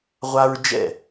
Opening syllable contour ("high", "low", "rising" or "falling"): high